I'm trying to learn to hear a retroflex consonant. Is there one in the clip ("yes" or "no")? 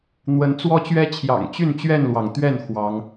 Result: no